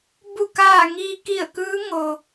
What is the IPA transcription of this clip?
bu˧˩kaː˧˩ ŋiː˧ ki˧˩ə̯kɯː˧˥ ŋo˩

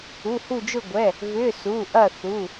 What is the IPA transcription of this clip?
u˩˧˩hu˧˩d͡ʒʊ˧˩ ɡʷɛ˩˧˩ | vʏ˩˧˩ su˩˧˩ʔɐ˧˩ θu˩˧˩

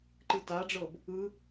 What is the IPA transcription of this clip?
ǃɯtaɖ͡ʐɤb | ɯ

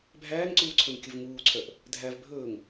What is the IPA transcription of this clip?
bʱæːŋǀuːǀʰɵn kʲɵvŋuːǀʰœʔ | dʱæv bʱɵːŋ

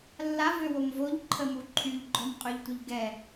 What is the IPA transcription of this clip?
lːavøwom voʎǃʰəmu ǃʰyʎɡ͡ǃɔmqʼøʎtʷəʎ ɡɛ

